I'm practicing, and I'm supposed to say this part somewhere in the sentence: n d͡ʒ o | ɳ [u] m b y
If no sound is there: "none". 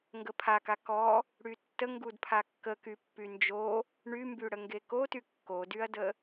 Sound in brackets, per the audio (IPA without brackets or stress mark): y